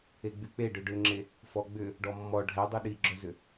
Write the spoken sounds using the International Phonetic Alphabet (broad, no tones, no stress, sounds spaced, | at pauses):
e ɡ͡b y k͡p e ɖ ʏ ɖ ʏ ŋ͡ǁ e | f ɔ ɡ͡b ʏ | ɖ ɔ mː ɔ ɖʱ ɛ dˤ y ɗ i ɡ͡ǁ œ z ʏ